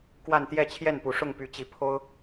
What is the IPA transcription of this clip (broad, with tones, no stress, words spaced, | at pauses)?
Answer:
kwa˥˧nt̪jɛ˥˧ t͡ɕʰjɛ˥˩npu˨˩ ʂʊ˥˩ŋpy˧˥t͡ɕi˧˥ pʰo˥ʊ̯